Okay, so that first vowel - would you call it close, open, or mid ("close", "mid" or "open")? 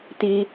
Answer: close